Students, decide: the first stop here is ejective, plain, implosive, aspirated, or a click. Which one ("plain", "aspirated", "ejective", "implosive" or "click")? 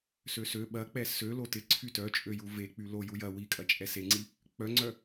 implosive